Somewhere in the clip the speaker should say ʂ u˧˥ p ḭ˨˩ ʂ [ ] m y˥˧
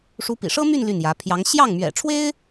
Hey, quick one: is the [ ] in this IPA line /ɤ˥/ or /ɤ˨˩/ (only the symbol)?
ɤ˥